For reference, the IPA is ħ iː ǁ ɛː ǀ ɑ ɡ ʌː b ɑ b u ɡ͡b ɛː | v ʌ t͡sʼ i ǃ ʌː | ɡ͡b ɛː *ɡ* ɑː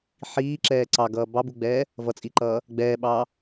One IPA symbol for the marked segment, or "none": ɓ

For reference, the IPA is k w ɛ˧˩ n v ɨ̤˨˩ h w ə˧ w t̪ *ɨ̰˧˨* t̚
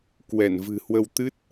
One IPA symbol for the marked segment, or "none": ɨ˦˥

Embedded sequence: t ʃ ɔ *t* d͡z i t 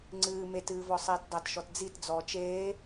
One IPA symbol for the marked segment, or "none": t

